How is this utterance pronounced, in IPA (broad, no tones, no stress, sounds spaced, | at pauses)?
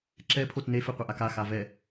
ǁ ɛ pʰ o t n e f e qʷ ɛ ʔ a k a x a v ɛ